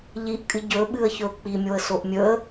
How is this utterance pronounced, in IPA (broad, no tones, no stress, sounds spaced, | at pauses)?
ʎ i ʔ kʼ ɨ ɟ ɵ ɓ ɨ ə̯ ç ɵ ʊ̯ k͡p i mʲ o ə̯ s o ʔ mʲ ɵ ə̯